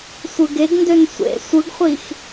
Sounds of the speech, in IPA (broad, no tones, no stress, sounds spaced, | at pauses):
sʷ ɯ ɡ e ɡ n d ø n sʷ ḛ sʷ ɯ ɡ χʷ i x